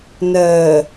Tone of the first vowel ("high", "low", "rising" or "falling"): low